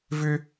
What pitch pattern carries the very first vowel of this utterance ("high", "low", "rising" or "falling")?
high